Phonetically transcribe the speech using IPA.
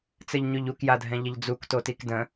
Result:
t͡sɘʎɲʉʎuk jadʱɛ̃ʎəʎd͡zuk totikdə̃

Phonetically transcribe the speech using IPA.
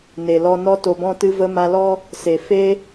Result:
ne˨lɔ˧ nɔ˧to˨bɔ̃˧tɨ˧ və˧ma˧lɔ˦ | se˨fe˦

